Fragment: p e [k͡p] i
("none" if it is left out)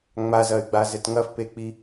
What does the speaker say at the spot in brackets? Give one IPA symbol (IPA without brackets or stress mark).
k͡p